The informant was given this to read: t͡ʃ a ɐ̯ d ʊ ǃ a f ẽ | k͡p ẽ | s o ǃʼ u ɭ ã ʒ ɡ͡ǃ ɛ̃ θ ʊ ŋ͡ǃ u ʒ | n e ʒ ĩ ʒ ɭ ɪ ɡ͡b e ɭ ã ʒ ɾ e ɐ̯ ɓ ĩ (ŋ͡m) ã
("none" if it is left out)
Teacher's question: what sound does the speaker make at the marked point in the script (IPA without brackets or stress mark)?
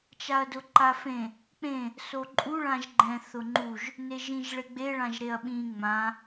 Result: ŋ͡m